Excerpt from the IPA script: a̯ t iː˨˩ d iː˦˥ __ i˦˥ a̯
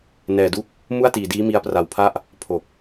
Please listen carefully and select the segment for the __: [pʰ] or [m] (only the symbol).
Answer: m